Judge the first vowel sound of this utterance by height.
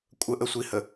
mid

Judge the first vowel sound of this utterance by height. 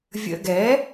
mid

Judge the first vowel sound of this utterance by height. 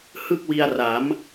high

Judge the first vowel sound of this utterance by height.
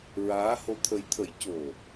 low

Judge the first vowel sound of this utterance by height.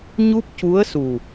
high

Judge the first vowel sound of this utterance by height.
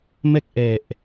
mid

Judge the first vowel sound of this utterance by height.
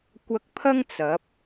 low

